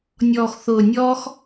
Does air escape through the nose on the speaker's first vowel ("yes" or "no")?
no